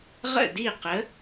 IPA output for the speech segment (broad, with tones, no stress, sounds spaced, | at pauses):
ʁ ə̰˥˩ d i˥˩ q ə˨˥